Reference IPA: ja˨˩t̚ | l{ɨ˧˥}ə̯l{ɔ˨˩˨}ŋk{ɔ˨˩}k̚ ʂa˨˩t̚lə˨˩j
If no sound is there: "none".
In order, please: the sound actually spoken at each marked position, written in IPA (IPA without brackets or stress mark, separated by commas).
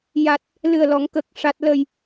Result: ɨ˨˩, ɔ˨˩˨, ə˨˩